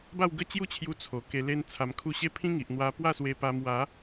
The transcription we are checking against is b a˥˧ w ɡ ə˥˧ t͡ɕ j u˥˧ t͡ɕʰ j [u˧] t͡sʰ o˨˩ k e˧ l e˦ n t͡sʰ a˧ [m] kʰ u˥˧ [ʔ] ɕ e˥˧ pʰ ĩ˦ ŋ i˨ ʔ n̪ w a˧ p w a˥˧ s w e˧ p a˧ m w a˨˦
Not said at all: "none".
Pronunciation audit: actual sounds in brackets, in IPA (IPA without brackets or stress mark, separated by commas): u˧, m, none